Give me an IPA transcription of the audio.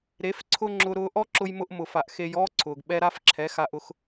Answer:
ɾ e˨˦ f ǀʰ ʊ˦ ŋ͡ǁ ʊ˧ ɾ ʊː˧ ʔ ɔ˦ ǁ ʊ˧ j m ʊ˧ ʔ m ʊ˧ f a˧ ʔ x e˦ j ɔː˦ ǀʰ ʊː˨ ɡ ɓ ɛ˧ ɾ a˦ f ǁʰ ɛ˨˦ x a˧ ʔ ʊ˧ x

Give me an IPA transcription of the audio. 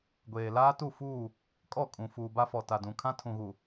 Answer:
ɡʷ eː˨ l aː˦ t u˦˨ f uː˦˨ | kʼ ɔ˦˨ kʼ ũ˨ f uː˨ b a˦ f ɔ˨ t a˨ d ũ˨ kʰ ã˦ tʰ ũ˨ ɣ u˨

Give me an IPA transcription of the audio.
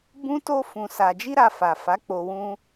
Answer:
b ũ˦ t o˦ f ũ˧ s a˧ d͡ʒ i˦ ɾ a˧ f a˨ f a˨˦ k͡p o˧ w ũ˦

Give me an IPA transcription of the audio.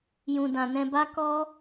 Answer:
j ũ˨ d ã˨ n ɛ̃˧ b a˦ k ɔ˦

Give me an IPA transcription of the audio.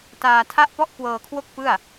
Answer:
t aː˧ tʰ a˥˩ ʔ p ɔ˥˩ ʔ k w ɤː˧ kʰ w o˥˩ k̚ p ɯ˥˩ a̯

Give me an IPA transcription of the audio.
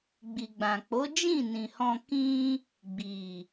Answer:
ɡ͡b i˨ ɡ͡b ã˨ k͡p o˨˦ d͡ʒ ĩ˦˨ n ĩ˨ h ɔ̃˧ k ĩ˧ | ɡ͡b i˨

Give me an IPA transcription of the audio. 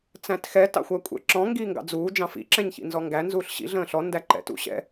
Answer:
t͡s æ̃ t x ɛ t ɑ̰ xʷ æ kʷʼ ɛ̰ ǁ ɔ̃ ŋ ɡ iː ŋ ɡ ɑ̰ d͡z uː d͡ʒ ɑ̃ f ḭ ǁ ɛ̃ ɲ ç ḭ n z ɔ ŋ ɡ æ n z uː ɬ ɕ ḭ ɮ ə̃ː ɬ ɔ n d æ ǃ ɛ̰ t ṵ ɕ ɛ̰

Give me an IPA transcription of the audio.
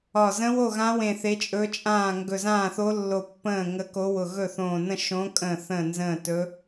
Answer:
ɒ˧˩ z ə̃˧˥ w o˥˩ ɣ ã˧˥ w ẽ˧˩ θ e˧˥ t͡ʃʼ ɵ˧˥ t͡ʃʼ ãː˥˩ ŋ ɡ ɵ˧˩ z ãː˥˩ θ o˧˥ lː o˧˩ pː ə̃ː˥˩ ŋ ə˧˥ k o˧˥ w ʊ˧˩ ɣ ɵ˥˩ θ õː˧˩ n ə̃˥˩ ʃ õ˧˥ kʼ ə̃ː˥˩ θ ə̃ː˥˩ n z ə̃ː˥˩ t ɵ˧˥

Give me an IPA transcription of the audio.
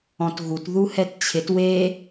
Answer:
ɔ̃ t ɣ u t ð u h ɛ t t͡ɕʰ ɪ t w e

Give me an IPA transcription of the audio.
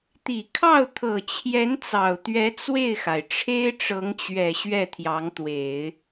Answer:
t̪ i˨˩ kʰ ɑ˥˩ ʊ̯ t̪ʰ ɤ˨˩ t͡ɕʰ j ɛ˧˥ n t͡s ɑ˨˩ ʊ̯ t̪ ɥ ɛ˧˥ t͡s w e˥˩ ɪ̯ x a˩ ɪ̯ ʈ͡ʂʰ e˥ ɪ̯ ʈ͡ʂ ɤ˧˥ ŋ t͡ɕ ɥ ɛ˨˩ ɕ ɥ ɛ˥˩ t̪ʰ j ɑ˧˥ ŋ t̪ w e˨˩˦ ɪ̯

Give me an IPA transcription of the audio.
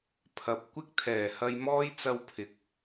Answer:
pʰ ɐ˨˥ p̚ kʷ ɪ˥ k̚ t̪ʰ ɛː˨˩ h ɐ˧ j m ɔː˥ j t͡s ɐ˥ w pʰ ɪ˨˥ k̚

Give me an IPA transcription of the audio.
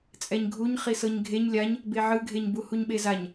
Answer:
t͡sʼ ɛ ɲ ɡʱ u ɲ χ i s ɤ ɲ ɡʱ e ɲ lʲ a ɲ | b e ʕ ɯ ɡʱ e ɲ b u h u ɲ ɓ e z a ɲ

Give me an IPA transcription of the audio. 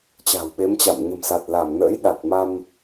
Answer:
t͡ɕ a̤˨˩ w ɓ e˨˦ m t͡ɕ a̰˧˨ m ɲ ə̤˨˩ m s a˨˩ t̚ l a˧˩ m n ə̰ː˧˥ j ɗ a˨˩ t̚ m a˧ m

